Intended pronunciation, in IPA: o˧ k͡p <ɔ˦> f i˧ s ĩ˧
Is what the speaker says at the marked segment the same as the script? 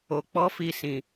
yes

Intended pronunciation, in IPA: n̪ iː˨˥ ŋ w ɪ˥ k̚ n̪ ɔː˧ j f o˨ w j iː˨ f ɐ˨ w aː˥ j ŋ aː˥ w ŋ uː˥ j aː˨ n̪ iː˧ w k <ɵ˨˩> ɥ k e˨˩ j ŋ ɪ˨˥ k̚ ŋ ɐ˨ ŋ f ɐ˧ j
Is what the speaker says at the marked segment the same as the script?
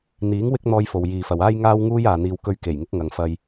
no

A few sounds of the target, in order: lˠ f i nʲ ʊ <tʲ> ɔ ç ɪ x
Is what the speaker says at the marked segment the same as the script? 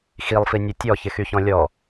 yes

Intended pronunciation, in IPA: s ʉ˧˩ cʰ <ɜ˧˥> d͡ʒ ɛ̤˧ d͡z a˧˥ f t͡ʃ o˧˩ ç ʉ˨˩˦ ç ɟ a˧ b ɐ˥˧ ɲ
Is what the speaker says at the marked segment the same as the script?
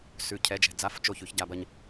no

